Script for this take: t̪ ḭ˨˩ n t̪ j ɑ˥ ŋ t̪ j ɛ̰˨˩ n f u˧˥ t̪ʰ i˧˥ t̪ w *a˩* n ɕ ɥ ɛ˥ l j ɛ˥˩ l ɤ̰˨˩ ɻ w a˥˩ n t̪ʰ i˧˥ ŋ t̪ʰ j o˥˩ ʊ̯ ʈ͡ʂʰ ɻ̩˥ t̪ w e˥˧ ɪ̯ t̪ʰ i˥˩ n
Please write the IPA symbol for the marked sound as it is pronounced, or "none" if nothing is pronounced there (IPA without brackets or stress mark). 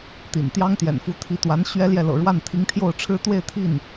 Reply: a˧˥